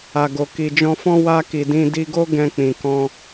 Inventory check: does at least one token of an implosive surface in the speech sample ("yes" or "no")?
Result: no